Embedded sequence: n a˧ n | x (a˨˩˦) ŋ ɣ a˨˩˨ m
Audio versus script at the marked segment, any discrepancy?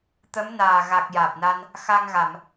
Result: yes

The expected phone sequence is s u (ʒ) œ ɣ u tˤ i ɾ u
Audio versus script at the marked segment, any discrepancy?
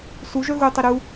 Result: no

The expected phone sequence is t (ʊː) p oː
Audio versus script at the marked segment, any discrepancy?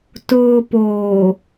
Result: no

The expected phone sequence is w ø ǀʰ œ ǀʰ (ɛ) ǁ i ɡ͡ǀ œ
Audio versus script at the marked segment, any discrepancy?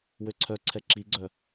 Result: no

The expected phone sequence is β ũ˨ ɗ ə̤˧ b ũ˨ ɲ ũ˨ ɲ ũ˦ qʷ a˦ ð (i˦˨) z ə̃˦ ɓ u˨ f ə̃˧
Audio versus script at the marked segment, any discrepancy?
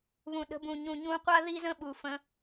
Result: yes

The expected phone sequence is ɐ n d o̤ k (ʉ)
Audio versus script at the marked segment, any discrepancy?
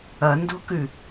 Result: no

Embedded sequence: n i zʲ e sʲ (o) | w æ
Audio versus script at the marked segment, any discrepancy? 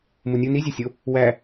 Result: no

